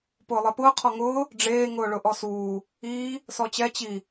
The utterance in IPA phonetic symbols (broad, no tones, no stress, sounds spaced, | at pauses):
p ʊː lˠ e p ʊː qʰ ɔ ŋ ʊː | ɖ͡ʐ eː ŋ ʊː ɭ ʊ ʔ ɔ s uː | iː | s ɔ t͡ɕ ɛ t͡ɕ i